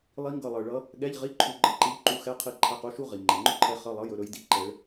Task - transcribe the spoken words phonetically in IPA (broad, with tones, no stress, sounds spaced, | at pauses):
lˠ i˧˥ ŋ ɡ ʌ˧˩ lˠ ɤ˩ ɭ ʌ˧˥ | ɠ ɛ˧˥˧ ʎ ʁ i˧˥˧ ǃʰ u˧˩ ɡ͡ǃ ʌ˥ ǃ i˧˥ ʎ ǃ u˧˥ x ɛ˧˥˧ qʰ i˧˥ ǃʰ ɛ˧˥˧ q u˥ ʃ u˥ ʁ i˩ ŋ͡ǃ ɛ˩ ŋ͡ǃ ɵ˥ ǃʰ ɛ˧˥ χ ʌ˧˥˧ lˠ ʌ˧˥˧ j ɵ˧˥˧ ɾ ɵ˧˥ j d i˧˩ ǃ ɛ˧˥ ɭ